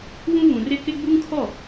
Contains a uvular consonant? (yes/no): no